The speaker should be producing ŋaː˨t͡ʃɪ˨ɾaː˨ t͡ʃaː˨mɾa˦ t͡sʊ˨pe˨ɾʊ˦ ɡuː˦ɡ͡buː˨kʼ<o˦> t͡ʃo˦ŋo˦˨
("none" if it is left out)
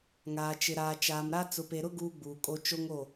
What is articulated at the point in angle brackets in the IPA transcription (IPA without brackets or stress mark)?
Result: o˦